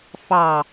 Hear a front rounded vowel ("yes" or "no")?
no